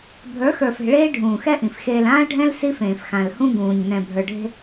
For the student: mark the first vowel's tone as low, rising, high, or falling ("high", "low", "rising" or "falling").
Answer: rising